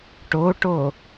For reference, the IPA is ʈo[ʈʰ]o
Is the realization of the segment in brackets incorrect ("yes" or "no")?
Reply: yes